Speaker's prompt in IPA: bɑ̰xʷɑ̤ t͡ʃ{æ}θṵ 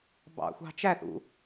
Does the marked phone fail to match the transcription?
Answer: no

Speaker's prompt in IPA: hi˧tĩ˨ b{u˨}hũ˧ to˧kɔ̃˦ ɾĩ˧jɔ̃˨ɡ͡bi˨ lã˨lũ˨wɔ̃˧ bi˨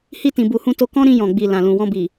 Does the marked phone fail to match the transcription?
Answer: no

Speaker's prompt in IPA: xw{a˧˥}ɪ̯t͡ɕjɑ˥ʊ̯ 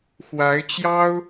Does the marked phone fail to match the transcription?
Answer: no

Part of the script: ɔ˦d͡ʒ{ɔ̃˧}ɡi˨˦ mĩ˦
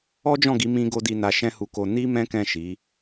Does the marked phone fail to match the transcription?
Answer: yes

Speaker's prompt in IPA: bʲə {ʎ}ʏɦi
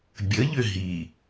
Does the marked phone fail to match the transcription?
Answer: no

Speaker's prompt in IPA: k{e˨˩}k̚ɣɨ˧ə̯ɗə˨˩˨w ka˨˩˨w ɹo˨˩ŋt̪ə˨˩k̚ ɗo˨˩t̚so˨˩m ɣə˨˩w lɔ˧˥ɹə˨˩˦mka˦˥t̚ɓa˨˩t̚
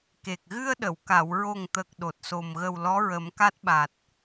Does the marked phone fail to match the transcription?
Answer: no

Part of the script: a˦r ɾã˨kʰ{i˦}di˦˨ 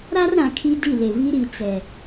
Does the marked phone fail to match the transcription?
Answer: no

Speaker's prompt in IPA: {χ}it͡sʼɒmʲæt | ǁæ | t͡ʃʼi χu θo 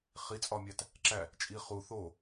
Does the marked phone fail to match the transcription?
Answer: no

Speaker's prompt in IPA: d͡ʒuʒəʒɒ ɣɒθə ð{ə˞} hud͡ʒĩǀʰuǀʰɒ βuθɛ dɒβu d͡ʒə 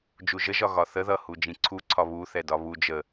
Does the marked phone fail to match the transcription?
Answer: yes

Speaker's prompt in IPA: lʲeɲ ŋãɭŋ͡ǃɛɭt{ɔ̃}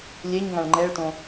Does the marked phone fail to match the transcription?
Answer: yes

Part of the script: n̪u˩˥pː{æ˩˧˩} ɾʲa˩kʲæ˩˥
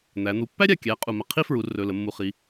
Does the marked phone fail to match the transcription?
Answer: yes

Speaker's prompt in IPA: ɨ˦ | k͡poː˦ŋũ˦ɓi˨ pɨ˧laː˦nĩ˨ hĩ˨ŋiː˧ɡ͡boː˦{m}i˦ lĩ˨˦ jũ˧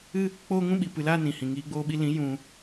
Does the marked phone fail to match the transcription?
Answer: yes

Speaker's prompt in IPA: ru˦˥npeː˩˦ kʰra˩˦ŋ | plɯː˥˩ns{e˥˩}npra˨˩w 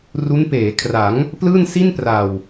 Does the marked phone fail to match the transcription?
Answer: yes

